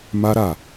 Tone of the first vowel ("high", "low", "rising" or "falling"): high